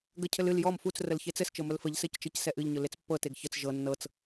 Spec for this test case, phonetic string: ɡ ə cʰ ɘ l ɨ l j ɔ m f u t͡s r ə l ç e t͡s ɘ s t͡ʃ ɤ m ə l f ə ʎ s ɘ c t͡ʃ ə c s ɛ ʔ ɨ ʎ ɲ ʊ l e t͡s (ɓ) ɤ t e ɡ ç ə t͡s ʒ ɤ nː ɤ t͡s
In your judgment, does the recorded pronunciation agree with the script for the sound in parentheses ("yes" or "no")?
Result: no